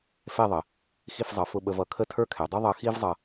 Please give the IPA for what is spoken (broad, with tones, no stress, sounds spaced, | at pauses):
f ɛ˥˧ ðˤ ə˩˧ | x i˥˧ f zˤ ʌ˩˧ f ʊ˧ ɓ ə˧ v ʌ˧˩ kʰ ə˥ tʰ ə˞˥ kʰ ɛ˩˧ dˤ u˥ ðˤ ʌ˧ x i˥ v zˤ ʌ˧